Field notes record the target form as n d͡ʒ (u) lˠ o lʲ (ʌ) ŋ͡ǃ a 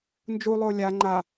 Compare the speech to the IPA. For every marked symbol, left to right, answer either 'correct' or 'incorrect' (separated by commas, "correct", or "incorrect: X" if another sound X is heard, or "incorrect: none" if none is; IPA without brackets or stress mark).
correct, incorrect: a